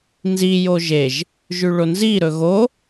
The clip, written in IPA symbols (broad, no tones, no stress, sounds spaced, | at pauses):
n z i j o ʒ e ʒ | ʒ ʉ ɭ o n z i ɾ ɵ ɣ o